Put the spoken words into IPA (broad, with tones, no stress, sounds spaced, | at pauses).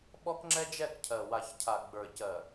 ɓ ɔ˦ k ŋ͡ǁ ɛ˦ d͡ʒ ɛ˦˨ k cʰ ɜ˨ w a˨ ç cʰ a˨ ɡ͡b ə˞˨ c ɜ˨